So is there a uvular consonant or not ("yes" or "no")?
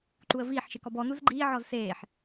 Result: no